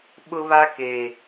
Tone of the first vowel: high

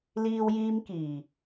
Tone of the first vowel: high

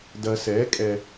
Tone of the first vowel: low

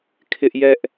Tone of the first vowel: high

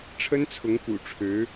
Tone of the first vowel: high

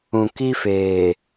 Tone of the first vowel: low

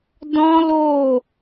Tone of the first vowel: high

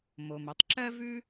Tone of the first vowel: low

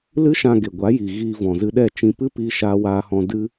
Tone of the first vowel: high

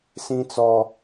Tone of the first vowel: high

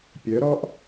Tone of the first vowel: rising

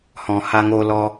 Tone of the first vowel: low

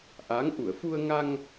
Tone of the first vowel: rising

